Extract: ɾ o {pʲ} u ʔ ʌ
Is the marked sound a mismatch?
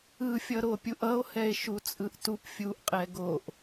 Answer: no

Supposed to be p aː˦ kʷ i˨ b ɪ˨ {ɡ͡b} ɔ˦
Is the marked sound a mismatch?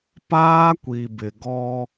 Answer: yes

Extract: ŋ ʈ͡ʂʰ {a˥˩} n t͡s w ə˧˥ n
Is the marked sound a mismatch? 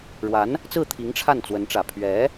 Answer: no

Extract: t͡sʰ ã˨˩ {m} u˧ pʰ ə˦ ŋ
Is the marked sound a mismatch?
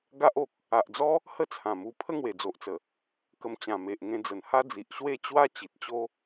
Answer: no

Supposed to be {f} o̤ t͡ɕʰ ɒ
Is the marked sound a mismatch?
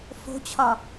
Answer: no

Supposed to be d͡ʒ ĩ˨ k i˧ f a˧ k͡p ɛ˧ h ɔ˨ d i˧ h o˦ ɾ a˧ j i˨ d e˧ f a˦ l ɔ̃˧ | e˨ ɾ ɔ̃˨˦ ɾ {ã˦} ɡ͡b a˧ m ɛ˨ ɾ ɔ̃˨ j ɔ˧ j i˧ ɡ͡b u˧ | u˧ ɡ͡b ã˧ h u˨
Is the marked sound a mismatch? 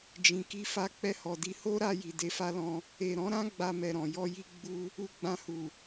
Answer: no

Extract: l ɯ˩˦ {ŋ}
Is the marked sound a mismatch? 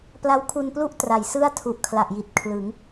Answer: no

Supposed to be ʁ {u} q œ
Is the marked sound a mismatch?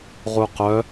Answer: no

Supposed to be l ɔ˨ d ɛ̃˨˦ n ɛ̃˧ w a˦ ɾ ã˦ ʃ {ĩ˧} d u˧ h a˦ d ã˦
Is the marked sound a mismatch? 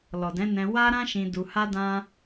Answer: no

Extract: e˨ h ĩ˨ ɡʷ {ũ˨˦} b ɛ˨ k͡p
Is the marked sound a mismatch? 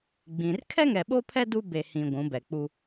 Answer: no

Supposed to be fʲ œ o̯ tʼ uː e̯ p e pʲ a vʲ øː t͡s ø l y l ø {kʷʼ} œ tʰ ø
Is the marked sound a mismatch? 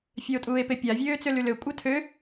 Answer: no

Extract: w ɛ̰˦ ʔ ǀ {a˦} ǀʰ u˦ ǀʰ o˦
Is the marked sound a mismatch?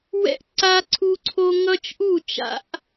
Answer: no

